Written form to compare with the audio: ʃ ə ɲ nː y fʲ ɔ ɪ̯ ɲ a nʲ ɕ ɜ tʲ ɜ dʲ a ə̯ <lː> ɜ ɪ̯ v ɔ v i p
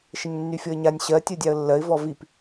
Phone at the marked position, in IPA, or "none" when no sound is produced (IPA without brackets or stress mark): lː